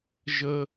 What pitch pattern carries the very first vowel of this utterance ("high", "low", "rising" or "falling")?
high